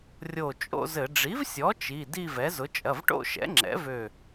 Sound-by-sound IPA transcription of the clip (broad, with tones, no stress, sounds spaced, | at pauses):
rʲ o˧˩ t͡ʃʼ o̰˥˧ z ɘ˧˩˧ ɖ͡ʐ i˩˥ v sʲ ɔ˩˥ t͡ʃ i˩˧˩ d i˥˧ v ɛ˩˥ z ʊ˩˥ t͡ʃʼ ɐ˩˧˩ v ʈ o̰˥˧ ʃ ɛ̰˩˥ ŋ͡ǁ ɛ̰˩˥ v ø˧˩